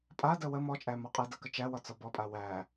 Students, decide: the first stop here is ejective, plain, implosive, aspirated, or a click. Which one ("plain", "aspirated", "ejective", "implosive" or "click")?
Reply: ejective